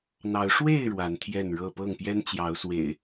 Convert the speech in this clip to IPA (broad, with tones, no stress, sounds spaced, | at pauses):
n̪ ɑ˨˦ ʊ̯ ʂ w e˥˨ ɪ̯ ɻ w a˨˦ n t̪ʰ j ɛ˥˨ n ɻ ɤ˥˨ p ɤ˥˨ ŋ p j ɛ˦ n t͡ɕ j ɑ˨˦ ʊ̯ s w ḛ˨˩ ɪ̯